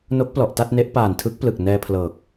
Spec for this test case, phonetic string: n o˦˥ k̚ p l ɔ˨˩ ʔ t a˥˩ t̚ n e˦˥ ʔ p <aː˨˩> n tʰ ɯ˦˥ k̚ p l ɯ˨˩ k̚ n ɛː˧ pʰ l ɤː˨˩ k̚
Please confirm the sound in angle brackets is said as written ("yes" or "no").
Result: yes